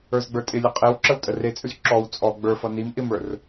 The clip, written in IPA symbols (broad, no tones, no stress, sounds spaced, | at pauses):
ə˞ z ɡ͡b ə˞ tʼ ɪ lʲ ʌ qʼ e w ǁ ə w tʼ ə r e t͡sʼ ʉ z ǁ ɔ w t͡sʼ ɔ ɡ͡b ə˞ f ʌ n i m ʔ ɪ m ə˞ r